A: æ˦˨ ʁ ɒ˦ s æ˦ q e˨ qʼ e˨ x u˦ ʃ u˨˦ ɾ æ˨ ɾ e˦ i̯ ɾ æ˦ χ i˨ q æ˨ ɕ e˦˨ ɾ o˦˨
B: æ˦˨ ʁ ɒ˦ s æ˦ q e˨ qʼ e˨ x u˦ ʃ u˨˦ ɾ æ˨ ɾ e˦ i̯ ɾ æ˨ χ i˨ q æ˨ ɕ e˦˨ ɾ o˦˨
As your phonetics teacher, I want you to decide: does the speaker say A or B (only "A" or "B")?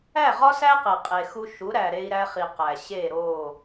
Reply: A